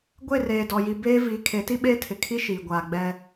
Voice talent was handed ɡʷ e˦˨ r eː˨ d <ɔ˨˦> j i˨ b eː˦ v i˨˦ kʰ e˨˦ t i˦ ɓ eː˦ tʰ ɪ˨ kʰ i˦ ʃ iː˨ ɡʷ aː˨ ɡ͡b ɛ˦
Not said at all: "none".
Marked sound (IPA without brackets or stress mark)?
ɔ˨